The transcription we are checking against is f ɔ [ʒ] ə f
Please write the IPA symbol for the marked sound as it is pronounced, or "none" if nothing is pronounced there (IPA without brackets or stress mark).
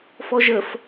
ʒ